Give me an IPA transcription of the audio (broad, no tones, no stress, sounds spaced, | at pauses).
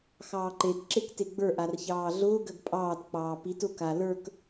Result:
x ɑː ǃ e t ǁ e k t e ɡ͡b ə˞ ʔ a r ç ɑː ɮ ʊː ɡ ɜ ɡ pʼ ɑː t k͡p ɑː p i t ʊ k a l ə˞ k